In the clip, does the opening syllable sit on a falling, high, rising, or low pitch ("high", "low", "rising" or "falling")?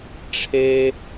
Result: high